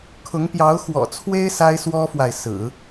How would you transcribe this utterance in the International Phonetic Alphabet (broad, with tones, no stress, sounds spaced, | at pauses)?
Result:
kʰ ʊ˧˥ ŋ p j ɑ˧˥ ʊ̯ x w ɔ̰˨˩ t͡sʰ w e˥ ɪ̯ s a˥ ɪ̯ s w ɔ˥ f w a˨ ɪ̯ s ɹ̩˨˩˦